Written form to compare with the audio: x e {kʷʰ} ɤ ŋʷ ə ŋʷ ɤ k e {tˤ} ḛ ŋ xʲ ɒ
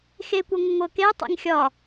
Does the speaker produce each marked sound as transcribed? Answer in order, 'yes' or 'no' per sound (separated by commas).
no, yes